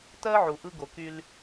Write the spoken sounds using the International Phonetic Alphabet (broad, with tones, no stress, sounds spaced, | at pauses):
t ɜ˦ ʕ u˨ ʔ ɯ˦ ɡ o˨ k y˦ l